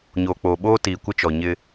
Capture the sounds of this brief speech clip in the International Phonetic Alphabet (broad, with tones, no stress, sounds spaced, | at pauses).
ɲ oː˨ k͡p oː˨ ɓ oː˦ t iː˨ kʷ ɪ˦ t͡ʃ ɔ˨ ɲ ɪ˦